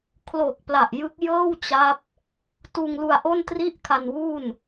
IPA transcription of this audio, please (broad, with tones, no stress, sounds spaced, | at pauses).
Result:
kʰ l o˨˩ k̚ p l a˨˩ ʔ j ɯ˦˥ k̚ j ɤː˥˩ w t͡ɕ a˦˥ p̚ | t uː˧ ŋ l u˧ a̯ ʔ o˥˩ n t r i˥˩ ʔ kʰ a˧ n w u˥˩ n